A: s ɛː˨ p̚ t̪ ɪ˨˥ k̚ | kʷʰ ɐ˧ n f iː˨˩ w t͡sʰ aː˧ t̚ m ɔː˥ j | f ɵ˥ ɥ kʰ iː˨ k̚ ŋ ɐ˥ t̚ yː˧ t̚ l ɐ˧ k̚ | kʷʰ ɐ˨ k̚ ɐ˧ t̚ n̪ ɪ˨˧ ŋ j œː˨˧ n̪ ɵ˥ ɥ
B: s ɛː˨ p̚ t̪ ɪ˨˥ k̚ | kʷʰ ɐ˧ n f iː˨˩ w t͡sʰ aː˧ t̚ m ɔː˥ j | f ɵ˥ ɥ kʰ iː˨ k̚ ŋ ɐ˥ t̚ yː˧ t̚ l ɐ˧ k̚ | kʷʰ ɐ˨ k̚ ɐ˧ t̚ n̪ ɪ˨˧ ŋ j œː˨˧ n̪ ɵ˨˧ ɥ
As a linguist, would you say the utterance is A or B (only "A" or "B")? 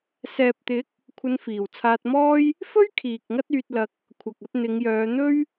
A